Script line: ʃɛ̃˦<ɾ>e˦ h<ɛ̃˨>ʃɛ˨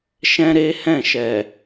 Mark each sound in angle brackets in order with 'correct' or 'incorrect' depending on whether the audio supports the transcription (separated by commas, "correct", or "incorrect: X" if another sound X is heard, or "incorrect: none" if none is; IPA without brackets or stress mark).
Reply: correct, incorrect: ɛ̃˦˨